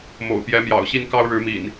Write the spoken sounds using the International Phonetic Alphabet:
m o̰˨˩ ʊ̯ p j ɛ˨˦ m j ɑ̰˨˩ ʊ̯ ɕ i˦ n k ɑ˦ ʊ̯ ɻ ɻ̩˨˦ m ḭ˨˩ n

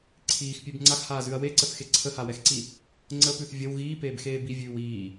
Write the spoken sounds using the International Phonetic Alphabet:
ǀʰ iː x pʲ ʉ b ŋ͡ǀ a x h aː z ʉ ɐ̯ w e ǀ ə θ x e ǀʰ ə h a w ɛ x ǀ i | ŋ͡ǀ ə p ʉ θ vʲ ə w ɣ iː p eː b x eː b i vʲ ʉː w iː

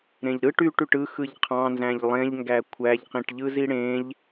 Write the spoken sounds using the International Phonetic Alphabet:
ɾ ẽ ʎ ɾ ɯ ʈ y ʈ y ʈ ɯ x ɯ ʎ qʰ ɑ̃ n z æ̃ ʎ lˠ ẽ ʎ ŋ ɡ æ kʷʰ æ ʎ q ĩ ʈ ʎ ɯ z i ɽ ẽ ʎ

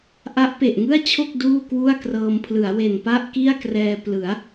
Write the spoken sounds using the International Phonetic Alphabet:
ʔ a˦˥ ʔ p e˨˩ ʔ ŋ ɯ˥˩ a̯ t͡ɕʰ o˥˩ k̚ d uː˥˩ k w u˥˩ a̯ k r ɤː˧ m pʰ l ɯ˩˦ a̯ w e˨˩ n p a˥˩ ʔ k i˥˩ a̯ k r ɛː˧ p l ɯ˩˦ a̯

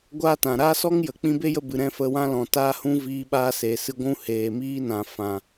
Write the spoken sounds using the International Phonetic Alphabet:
ɡʷ aː˦ t ã˨ ɾ aː˦ s ɔ˦ ŋ j ə˨ k͡p ĩ˧ b e˦ j ə˧ b ɨ˨ ɾ ɛ̃˦ f ə˧ w ã˦ l ɔ̃˨ t aː˦ h ũ˦ v iː˦ ɓ aː˦ s e˨ s ɨ˧ ɡʷ ũ˦ h eː˨ m iː˦ n ã˨ f ã˨

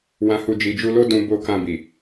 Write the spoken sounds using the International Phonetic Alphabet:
w ã˧ h u˧ d͡ʒ i˨ d͡ʒ u˧ l o˦ d ũ˧ b o˧ k ã˧ b i˨

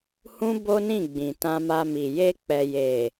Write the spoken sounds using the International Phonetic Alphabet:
h ũ˦ b o˦ n ĩ˦˨ ɡ͡b ĩ˨ t ã˧ m a˧ m i˨ j e˧ k͡p ɛ˨ j e˨

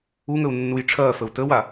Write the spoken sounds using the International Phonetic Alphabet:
u ŋ ə u̯ nː u j ʈ͡ʂʰ ɐː f ə u̯ t ə w a

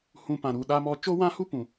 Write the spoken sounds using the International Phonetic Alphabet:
h ũ˦ p ã˧ ɾ u˧ ɗ a˦ m ɔ˦ t͡ʃ o˦ w ã˦ h u˦ p ũ˨

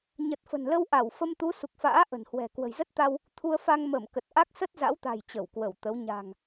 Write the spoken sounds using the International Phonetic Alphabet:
ɲ ə˨˩ t̚ f ə̤˨˩ n l ə˧ w ʔ a˧˩ w f ə˧ m t̪ u˨˦ s u˨˩ k̚ f a̰ː˧˥ ʔ ə̤˨˩ n h w ɛ̤˨˩ k w ə̤˨˩ j z ə˦˥ t̚ t̪ a˧ w | t̪ʰ u˧ ə̯ f a˧ ŋ m ə˧˩ m k ə˨˩ t̚ ʔ a˦˥ k̚ s ə˦˥ t̚ z a̰˧˥ w t̪ a̤˨˩ j t͡ɕ ə˧˩ w k w ə˧˩ w t̪ ə˨˦ w ɲ a̤˨˩ ŋ

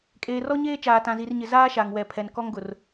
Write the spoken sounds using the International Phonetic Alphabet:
kʼ eː˨ r ɔ˦ ɲ eː˦ t͡ʃ aː˨ t ã˨ z i˨ r ɲ ɪ˨ z aː˦ ʃ a˨ ŋ w ɛ˨ pʰ ɛ˨ n k ɔ˦ ŋ ɡ ʊ˨ r

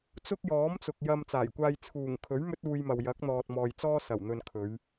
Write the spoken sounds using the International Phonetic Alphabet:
t͡s ʊ˥ k̚ j ɔː˨˥ m t͡s ʊ˨ k̚ j ɐ˧ m t͡s aː˨˩ j kʷ aː˧ j t͡sʰ uː˨˩ ŋ kʰ ɵ˨˥ ɥ m ɵ˥ t̚ uː˧ j m ɐ˨ w j ɐ˨˥ k̚ n̪ ɔː˨ t̚ m ɔː˨ j t͡s ɔː˥ s ɐ˨˩ w n̪ ɵ˨ n kʰ ɵ˨˧ ɥ

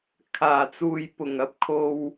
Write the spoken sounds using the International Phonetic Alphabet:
kʰ aː˨˩ t͡s uː˨ j p ʊ˨˩ ŋ ɐ˧ p̚ kʰ o˧ w

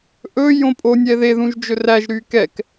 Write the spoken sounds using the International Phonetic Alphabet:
ʔ ɵ j õ pʼ o nʲ ɛ ð e ð ũ ʒ d͡ʒ ɵ r æ ʒ ɾ y k ɛ k

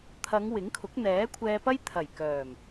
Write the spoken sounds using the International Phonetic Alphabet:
t̪ʰ ɐ˨˧ ŋ w ɪ˨˥ ŋ kʰ ʊ˨˥ k̚ n̪ ɛː˨˥ kʷʰ ɛː˧ p ɐ˥ j t̪ʰ ɐ˨˩ j k œː˨˩ m

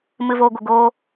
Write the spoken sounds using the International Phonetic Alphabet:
m ɨ˨ v oː˨ ɡʷ ə˨ ɡ oː˧

